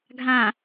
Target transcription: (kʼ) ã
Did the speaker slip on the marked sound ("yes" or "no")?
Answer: yes